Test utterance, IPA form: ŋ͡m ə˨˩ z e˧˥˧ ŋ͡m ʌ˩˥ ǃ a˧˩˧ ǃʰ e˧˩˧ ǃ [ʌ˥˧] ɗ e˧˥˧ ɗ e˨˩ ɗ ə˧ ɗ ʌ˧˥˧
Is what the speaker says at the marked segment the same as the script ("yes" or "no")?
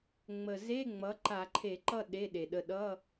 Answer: yes